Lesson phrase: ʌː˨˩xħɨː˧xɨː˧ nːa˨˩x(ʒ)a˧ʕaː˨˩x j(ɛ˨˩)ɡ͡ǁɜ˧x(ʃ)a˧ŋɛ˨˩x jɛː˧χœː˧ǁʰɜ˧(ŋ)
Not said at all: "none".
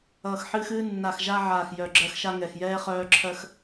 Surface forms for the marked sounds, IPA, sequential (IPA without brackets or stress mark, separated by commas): ʒ, œ˨˩, ʃ, x